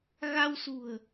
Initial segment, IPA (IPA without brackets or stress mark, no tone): ɣ